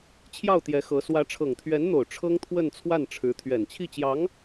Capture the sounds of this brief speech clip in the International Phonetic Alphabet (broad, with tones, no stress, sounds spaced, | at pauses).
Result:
t͡ɕʰ j ɑ˥˩ ʊ̯ t̪ j ɛ˧˥ x ɤ˧˥ s w ä˧˥ ʈ͡ʂʰ ɤ˨˩ ŋ t̪ʰ ɥ ɛ˧˥ n n̪ o˨˩ ʊ̯ ʈ͡ʂʰ ɤ˥ ŋ t̪ʰ w ə˥˧ n t͡sʰ w a˥˩ n ʈ͡ʂʰ ɻ̩˧˥ t̪ʰ ɥ ɛ˨˩ n t͡ɕʰ i˥˩ t͡ɕ j ɑ˧˥ ŋ